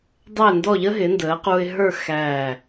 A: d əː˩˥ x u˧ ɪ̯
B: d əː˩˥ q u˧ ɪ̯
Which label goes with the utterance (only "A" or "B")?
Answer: B